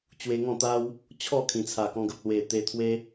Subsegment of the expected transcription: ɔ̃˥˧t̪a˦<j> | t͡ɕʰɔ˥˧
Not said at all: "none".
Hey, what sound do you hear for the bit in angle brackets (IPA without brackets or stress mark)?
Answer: w